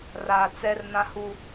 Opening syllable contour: low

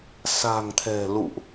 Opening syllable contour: low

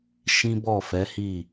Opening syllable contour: high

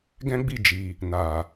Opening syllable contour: high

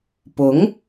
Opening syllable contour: rising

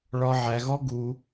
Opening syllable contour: high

